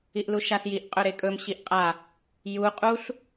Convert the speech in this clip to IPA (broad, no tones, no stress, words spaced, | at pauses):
iʔluʃasjiʔ qʼɵɾekʼɵm ɕiʔqʼa | ju qʼuɬ